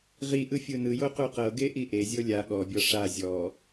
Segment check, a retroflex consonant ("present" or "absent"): present